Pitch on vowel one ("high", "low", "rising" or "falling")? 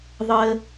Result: high